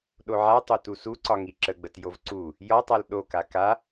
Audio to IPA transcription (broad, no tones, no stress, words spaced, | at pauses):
ɗoʕatˤo tusuǀɒ ŋiǁəɡ͡bət jovǀu | jɒtˤal ɗoka ka